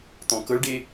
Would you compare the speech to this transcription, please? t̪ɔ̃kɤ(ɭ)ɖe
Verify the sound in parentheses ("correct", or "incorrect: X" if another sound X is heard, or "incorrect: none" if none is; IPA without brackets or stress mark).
correct